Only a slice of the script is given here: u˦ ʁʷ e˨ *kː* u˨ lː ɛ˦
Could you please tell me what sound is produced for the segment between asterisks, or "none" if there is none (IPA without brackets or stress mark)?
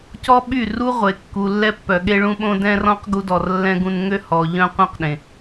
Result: kː